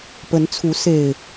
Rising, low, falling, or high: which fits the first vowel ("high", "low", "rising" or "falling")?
rising